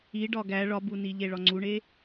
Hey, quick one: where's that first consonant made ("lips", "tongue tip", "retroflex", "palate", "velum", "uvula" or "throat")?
retroflex